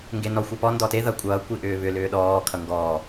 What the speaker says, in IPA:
ŋ ɡ e n ɔ xʷ ʌ p ɔ n d ɔ t e ð ʌ kʷʼ ʌː kʷ i ʔ ʏː β ʏ l ʏː ɗ ɔː kʰ ʌ ŋ ɡ ɔː

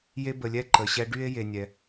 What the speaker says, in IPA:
j e˦ b ə˨ lʲ ɛ˦ ǃ ə˩ ɕ ɛ˦ ɖ y˥ e̯ j e˨ nʲ ɛ˩

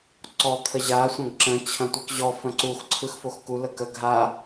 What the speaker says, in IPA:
ǀ ɔ t̪ʰ ə ʑ a sʷ ɐ̃ ɡ ǁ ə̃ t͡ɕʰ ɐ̃ tʷ ɯ k ʑ ɔ f ə̃ ǀ u x ǀʰ ɯ x f o x k u l ə k ə ɡʱ a

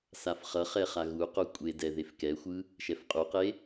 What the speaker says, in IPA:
s a f χ ʌ χ ɛ χ a ɣ u q o kʷʼ e d ɛ ð e f k ɛ xʷ ɯ | ʃ ɛ f qʼ u q e

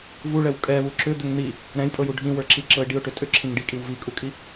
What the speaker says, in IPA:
v u ɭ ɛ w kʼ ɛ β u ǁ ʏ d̪ ʏ ŋ n̪ i | ɾ ɛ̃ j pʼ ɤ j u ɖʱ ĩ w ə˞ ǁ i ǁ ɤ ɪ̯ ɖ i ʊ̯ ʈ ʏ tʼ ʏ ǁʰ ĩ ŋ ɖ i kʼ i w v i kʼ u kʼ i

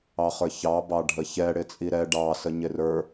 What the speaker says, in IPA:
ɑ χ ə˞ ç ɑ b ɑ ɖʱ ə ç ɛ ɽ ɪ t͡sʼ i ɾ ɛ ɖ ɑ s ə ɲ ɪ r ə˞

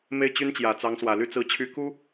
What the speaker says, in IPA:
m e˥˩ ɪ̯ t͡ɕ y˥ n t͡ɕ j ä˨˩ t͡s ɑ˧˥ ŋ s w ä˨˩ l y˥˩ t͡s ɹ̩˧˥ t͡ɕʰ y˧˥ k u˥

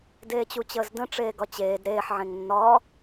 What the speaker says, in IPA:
d eː t͡ɕ u t͡ɕ əː z d ə̃ ʈ͡ʂ eː ɡ ɒ t͡ɕ eː d ɾ eː ħ ʕ ẽ ŋ nː ɒː

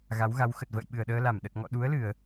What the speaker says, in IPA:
ɣ a˨˦ w ɣ a˨˦ w x ə˨˩ t̚ v ə̰ː˧˨ j ɓ ɨ˨˩ ə̯ ɗ əː˧ l a˧˩ m ɗ ə˨˩ t̚ ŋ ɔ̰˧˨ ɗ u˨˦ ə̯ l ɨ˧˩˨ ə̯

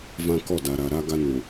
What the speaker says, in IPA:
v ã˦ k ɔ˦˨ d a˨ ɾ a˨ ɾ a˦ ɡ a˦ n ũ˨

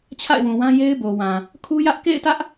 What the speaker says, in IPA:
t͡ɕʰ a̰˦˨ ɪ̯ w ũ˨ w ã˦ j e˦ ɪ̯ b o˨ w ã˨ | kʰ u˦ j ä˦ ʔ k ḛ˦˨ ɪ̯ t ä˦ ʔ

